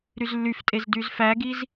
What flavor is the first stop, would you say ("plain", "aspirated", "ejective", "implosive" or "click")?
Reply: ejective